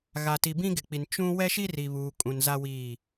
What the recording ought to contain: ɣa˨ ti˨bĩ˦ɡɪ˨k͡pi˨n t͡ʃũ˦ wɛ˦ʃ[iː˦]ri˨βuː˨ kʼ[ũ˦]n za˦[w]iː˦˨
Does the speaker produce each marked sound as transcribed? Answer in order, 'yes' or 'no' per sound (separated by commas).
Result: no, no, yes